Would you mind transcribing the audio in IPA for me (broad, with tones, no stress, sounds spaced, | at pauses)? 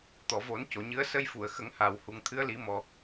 t̪ ɔ˨˩˨ v o˨˩˦ n c o˨˩˨ ɲ ɨ˧˥ ə̯ s ə˧ j f u˨˩˨ ə̯ x ə˨˩˦ ŋ h a˨˩ w h u˨˩ ŋ t̪ʰ ɨ˧˥ ə̯ l i˨˩˦ m ɔ˨˩